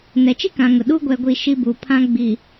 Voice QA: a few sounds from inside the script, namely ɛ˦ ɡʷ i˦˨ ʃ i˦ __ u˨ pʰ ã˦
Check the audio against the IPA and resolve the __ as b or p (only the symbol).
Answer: b